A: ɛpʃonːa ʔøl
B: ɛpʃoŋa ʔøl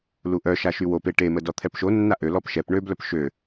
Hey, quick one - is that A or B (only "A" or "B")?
A